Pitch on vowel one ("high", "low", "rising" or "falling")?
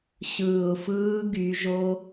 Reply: low